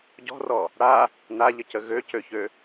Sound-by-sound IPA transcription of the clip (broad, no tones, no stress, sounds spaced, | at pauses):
ɟ ɔ̤ r ɔ | ɽ a | n a ʎ ə c ə ɣ ø c ø ç ø